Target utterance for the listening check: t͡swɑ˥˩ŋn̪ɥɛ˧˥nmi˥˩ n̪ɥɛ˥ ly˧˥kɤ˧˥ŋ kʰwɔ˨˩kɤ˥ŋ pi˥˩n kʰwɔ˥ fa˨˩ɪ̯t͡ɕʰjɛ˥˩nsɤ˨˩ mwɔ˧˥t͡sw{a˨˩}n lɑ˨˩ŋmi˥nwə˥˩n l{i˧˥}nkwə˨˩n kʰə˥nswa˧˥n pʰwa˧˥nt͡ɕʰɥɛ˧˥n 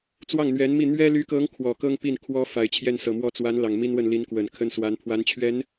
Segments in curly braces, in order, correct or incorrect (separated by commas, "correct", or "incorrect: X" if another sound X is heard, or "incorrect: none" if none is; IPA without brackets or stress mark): incorrect: a˧˥, correct